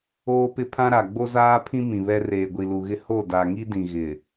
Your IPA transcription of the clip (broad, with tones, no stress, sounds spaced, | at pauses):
oː˦ p ɪ˦ pʰ ã˦ ɾ a˨ ɡ͡b o˦ z aː˦ pʰ ĩ˦ m ĩ˨ β ɛ˦ r eː˨ ɡʷ i˨ l u˨ ɣ ɪ˦ h o˦˨ d a˨ ŋ i˦ d ĩ˨ ɣ ɪ˨